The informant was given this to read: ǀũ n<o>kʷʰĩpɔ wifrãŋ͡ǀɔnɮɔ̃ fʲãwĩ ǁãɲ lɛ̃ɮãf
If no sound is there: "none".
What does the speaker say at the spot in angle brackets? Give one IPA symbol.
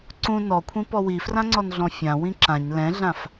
ɔ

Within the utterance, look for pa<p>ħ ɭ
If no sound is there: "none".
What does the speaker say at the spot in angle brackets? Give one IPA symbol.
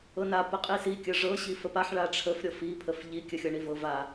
none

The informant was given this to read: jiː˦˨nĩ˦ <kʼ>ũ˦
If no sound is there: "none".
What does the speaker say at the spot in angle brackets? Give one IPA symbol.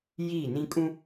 kʼ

